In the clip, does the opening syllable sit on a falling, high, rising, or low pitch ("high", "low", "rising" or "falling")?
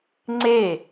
falling